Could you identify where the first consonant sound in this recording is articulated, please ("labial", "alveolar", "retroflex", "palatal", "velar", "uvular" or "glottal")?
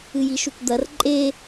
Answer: palatal